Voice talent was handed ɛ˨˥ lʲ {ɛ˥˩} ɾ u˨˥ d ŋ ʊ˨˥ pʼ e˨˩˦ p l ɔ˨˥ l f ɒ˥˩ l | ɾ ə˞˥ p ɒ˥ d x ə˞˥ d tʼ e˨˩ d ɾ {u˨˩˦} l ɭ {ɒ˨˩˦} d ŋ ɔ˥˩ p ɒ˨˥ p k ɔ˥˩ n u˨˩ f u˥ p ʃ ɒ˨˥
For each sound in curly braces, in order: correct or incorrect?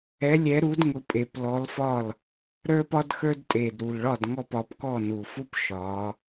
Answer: incorrect, incorrect, incorrect

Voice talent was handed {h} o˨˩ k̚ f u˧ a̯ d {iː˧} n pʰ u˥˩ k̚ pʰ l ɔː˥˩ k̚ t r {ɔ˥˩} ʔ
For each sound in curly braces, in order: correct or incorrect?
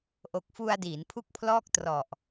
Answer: incorrect, incorrect, incorrect

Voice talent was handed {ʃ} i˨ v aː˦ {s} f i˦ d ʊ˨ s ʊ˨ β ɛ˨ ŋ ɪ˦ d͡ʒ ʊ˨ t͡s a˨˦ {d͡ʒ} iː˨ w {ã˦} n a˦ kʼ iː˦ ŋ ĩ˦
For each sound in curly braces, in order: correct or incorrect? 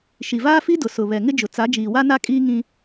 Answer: correct, incorrect, correct, incorrect

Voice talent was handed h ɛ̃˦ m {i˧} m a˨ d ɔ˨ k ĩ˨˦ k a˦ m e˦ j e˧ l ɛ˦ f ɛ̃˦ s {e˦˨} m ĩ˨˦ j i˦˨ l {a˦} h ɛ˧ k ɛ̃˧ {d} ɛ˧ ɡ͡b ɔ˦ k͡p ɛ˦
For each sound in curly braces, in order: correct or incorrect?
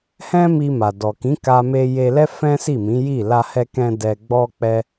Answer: correct, incorrect, incorrect, correct

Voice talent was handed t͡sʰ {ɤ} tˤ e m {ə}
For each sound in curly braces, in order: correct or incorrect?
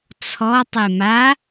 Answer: incorrect, incorrect

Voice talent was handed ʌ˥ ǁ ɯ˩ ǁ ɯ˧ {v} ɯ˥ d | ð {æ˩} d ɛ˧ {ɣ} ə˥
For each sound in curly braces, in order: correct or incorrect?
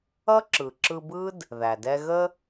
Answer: incorrect, correct, correct

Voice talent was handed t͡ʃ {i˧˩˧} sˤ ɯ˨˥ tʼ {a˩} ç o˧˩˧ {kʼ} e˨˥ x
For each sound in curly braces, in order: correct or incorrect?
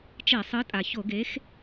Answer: incorrect, correct, incorrect

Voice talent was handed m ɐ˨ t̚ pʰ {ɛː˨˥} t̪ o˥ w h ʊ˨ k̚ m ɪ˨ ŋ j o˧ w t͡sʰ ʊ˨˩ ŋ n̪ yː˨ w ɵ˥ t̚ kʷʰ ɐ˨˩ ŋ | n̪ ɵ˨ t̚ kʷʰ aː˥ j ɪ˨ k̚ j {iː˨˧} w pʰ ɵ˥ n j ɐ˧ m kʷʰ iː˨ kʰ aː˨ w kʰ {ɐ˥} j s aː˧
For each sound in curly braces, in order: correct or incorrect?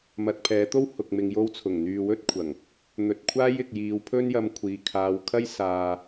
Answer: correct, correct, correct

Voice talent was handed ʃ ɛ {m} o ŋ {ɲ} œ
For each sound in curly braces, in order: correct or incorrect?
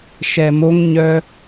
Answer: correct, correct

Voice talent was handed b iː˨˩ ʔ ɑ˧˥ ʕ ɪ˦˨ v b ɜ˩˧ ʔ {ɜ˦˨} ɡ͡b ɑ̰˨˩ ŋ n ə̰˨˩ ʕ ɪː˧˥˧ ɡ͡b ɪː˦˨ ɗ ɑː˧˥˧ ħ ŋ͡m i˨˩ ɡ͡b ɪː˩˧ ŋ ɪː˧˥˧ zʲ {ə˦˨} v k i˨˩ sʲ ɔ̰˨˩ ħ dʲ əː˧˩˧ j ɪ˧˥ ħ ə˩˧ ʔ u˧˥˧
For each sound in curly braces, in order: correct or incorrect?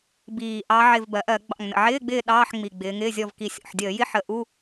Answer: incorrect, incorrect

